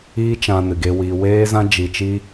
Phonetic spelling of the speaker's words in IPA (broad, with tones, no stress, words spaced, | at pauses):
iː˦t͡ʃã˧ nɨ˨ɡe˧wiː˧ weː˦ zã˦d͡ʒi˧t͡ʃi˦